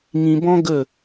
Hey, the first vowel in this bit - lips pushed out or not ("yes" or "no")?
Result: no